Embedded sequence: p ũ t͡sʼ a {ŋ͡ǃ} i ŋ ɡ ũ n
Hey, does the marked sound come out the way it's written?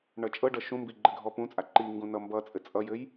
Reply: no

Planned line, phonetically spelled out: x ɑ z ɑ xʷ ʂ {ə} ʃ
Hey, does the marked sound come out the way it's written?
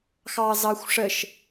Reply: yes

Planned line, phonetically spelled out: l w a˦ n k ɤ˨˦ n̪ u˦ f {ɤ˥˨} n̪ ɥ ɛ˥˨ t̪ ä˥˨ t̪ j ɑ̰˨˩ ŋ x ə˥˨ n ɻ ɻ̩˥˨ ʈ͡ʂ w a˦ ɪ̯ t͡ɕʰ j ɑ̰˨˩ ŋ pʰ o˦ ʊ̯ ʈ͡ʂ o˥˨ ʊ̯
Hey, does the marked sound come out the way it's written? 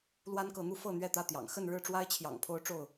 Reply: yes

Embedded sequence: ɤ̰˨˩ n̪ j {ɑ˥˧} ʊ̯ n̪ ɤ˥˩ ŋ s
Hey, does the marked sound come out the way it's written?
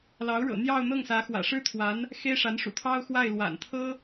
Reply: yes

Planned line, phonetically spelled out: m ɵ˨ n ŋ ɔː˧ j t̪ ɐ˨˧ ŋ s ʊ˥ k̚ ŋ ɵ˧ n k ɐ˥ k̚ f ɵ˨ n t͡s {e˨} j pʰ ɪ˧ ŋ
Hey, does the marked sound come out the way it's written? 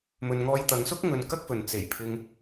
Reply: no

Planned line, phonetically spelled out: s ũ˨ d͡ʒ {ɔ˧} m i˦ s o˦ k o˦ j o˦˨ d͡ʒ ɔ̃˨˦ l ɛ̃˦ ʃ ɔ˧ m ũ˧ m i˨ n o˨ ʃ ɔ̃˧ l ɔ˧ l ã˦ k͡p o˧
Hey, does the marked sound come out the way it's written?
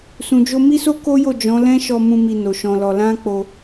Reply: no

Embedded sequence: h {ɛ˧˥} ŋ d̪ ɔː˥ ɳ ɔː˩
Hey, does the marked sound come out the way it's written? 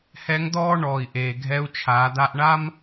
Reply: yes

